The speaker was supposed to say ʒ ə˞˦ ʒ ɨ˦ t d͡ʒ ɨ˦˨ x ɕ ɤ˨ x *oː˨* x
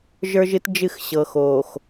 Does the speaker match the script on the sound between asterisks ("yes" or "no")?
yes